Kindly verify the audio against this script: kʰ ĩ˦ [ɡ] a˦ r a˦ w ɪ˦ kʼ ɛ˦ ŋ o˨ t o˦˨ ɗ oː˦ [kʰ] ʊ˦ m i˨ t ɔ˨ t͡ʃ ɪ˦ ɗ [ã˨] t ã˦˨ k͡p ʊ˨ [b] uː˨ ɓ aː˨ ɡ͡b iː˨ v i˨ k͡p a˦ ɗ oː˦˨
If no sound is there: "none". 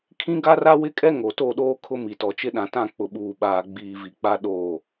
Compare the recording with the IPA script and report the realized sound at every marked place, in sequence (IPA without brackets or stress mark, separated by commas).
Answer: ɡ, kʰ, ã˨, ɓ